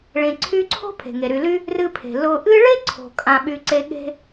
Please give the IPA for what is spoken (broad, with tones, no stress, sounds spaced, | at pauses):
ɭ ẽ˨ ǀʰ y˦ ǀʰ o̤˥ pʰ e̤˩ ŋ e˩ ɾ y˨ l y˥ | r ɨ˦ pʰ e̤˩ l ʊ˨ ʔ ɨ˦ ɭ e˥ ǀʰ o̤˩ kʼ ã˨ ɓ y˨ ǀ e˦ ɠ e̤˥